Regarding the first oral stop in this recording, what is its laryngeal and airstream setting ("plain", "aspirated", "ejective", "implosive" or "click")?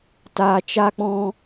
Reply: plain